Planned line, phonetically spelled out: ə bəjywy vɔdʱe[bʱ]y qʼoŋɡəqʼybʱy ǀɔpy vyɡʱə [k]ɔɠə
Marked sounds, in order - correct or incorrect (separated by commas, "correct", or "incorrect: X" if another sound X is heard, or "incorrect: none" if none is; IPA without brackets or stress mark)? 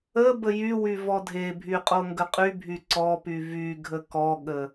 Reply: correct, correct